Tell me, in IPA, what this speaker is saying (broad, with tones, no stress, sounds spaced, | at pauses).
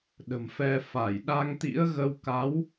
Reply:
ɗ ə̤˨˩ m f ɛ˧ f a˧˩ j ɗ a˧ ŋ t̪ ḭ˧˥ ə̯ ɣ ə˧ w k a˨˦ w